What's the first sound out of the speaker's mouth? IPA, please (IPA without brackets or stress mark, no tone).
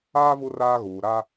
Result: aː